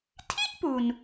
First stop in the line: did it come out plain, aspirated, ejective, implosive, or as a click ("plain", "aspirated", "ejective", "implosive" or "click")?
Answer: aspirated